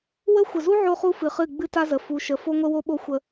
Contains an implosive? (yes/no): yes